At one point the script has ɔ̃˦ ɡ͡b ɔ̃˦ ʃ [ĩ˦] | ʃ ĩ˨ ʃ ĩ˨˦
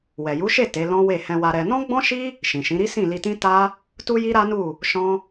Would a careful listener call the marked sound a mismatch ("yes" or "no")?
yes